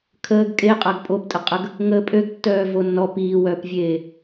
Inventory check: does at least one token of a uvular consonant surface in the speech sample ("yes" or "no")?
yes